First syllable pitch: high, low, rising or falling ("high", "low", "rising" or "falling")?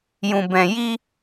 low